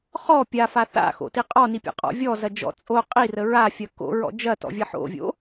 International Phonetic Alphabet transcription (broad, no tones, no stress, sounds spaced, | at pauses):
χ ɔ pʲ a f a θ a̰ x o̰ t i qʼ ɔ n i pʲ ɔ̰ qʼ ɔ̰ vʲ ɔ z ɐ d͡ʒ ɔ̰ t͡sʼ o qʼ i r ə ɹ a fʲ ɐ k o̰ ɹ ɔ̰ d͡ʒ ɐ t ɔ̰ vʲ ɐ ħ o̰ vʲ o̰